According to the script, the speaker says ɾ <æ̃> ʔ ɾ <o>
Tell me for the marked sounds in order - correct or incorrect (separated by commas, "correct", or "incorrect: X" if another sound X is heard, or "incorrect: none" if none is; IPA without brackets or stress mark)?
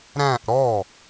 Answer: correct, incorrect: ɔ